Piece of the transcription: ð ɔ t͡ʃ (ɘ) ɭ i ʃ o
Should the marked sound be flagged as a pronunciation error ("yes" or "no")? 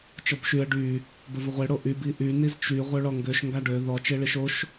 yes